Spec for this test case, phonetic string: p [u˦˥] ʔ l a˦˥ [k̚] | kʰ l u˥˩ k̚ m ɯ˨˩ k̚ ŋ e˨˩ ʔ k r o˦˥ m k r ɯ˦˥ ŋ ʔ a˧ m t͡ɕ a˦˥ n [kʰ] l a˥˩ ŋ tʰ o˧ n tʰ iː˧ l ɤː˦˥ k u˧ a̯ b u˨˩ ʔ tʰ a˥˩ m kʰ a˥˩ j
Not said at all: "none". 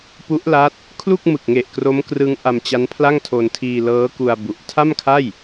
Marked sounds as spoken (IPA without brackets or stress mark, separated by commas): u˦˥, t̚, pʰ